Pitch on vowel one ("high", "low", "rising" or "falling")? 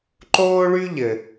high